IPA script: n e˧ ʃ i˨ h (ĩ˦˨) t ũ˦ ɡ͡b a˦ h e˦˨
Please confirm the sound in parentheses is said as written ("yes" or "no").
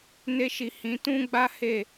no